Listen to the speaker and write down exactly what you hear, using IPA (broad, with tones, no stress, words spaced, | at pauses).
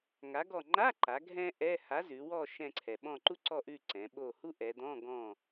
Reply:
ŋa˨˥ɡɔ˦˨ ŋ͡ǃa˧˥˧ǃa˩˧ ɡʱɛ̃˥ʔɛ˧˥˧ ha˨˥zʉ˩˧wɔ˦˨ ʃɛ̃˦˨ǀʰɛ˩ ɓɔ̃˦˨ǃu˥ǀɔ˦˨ ʔʉ˦˨ ǀɛ̃˩˧ɓo˦˨ hu˥ʔɛ˩˧d̪ɔ̃˧˥˧ ɡɔ̃˦˨